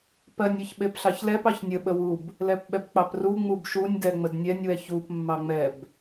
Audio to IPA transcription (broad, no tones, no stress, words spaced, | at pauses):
pɜnʲ ɜçɓepɬɑçlɛp ɑçnʲə ɓəwub | lɛpɓɛbk͡pɑpru ŋ͡mubʃunʲ dɛŋ͡mədnʲɛnʲ wɛçup mːɑŋ͡mɛb